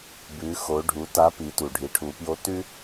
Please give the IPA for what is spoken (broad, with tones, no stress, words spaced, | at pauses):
bʉ˩˧xo˩˧ɖʱu˩˧ ta˧˥pi˩˧tu˩ ɖʱi˩˧ʈʰu˩˧ pjo˧˥tʉ˥